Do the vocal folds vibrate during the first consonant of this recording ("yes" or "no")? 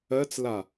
no